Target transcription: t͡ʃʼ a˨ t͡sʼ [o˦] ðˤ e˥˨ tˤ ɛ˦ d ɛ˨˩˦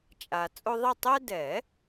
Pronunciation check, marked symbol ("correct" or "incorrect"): correct